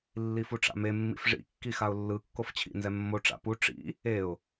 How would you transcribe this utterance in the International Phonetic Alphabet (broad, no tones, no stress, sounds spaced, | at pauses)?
lː i f u ʈ͡ʂ a̰ m e mː ḭ f ʐ ḭ kː i x a ʊ̯ lː ɯ kː o f t͡ɕʰ ḭ n z ɛ mː o ʈ͡ʂ a̰ p u ʈ͡ʂ ḭ | e ʊ̯